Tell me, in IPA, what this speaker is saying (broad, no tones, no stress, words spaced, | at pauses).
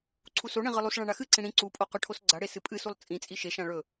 ǀʰusoɳĩ ʁɨlˠusɭã ɳaxɨǀĩ ɽĩ ǀupʼo qɵʈʰosɡ͡ǀaɽe sɨpʼɨsulˠ t͡sʼĩt͡sʼi ʃeʃã ɭɵ